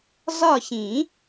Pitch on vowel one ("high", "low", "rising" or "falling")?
falling